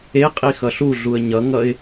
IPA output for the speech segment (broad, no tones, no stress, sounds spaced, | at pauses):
e qʼ i x ʌ ɬ u ɮ u ə̯ ɲ ʌ ŋ ʌ ɪ̯